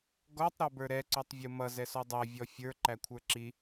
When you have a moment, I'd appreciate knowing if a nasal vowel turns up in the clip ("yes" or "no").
no